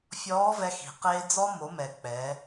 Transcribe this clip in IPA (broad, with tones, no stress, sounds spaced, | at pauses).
fʲ ɔː˧˥ v ɛ˧ x i̤˩ q eː˧ d͡z ɔ˧ m o˩˧ m ɛ˩ k͡p ɛ˩˧